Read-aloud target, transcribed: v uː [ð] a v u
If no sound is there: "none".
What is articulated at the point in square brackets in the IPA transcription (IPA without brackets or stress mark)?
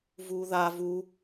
ð